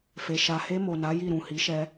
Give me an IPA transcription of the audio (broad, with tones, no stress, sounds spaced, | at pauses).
f e˨ ʃ a˨ h e˧ m o˨ n a˨˦ j i˦˨ ɾ ũ˨ h i˨˦ ʃ ɛ˧